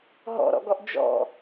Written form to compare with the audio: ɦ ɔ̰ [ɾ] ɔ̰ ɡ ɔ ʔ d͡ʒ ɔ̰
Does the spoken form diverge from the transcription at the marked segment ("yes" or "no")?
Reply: no